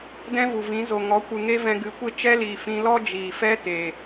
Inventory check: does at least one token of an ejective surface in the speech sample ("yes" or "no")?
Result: no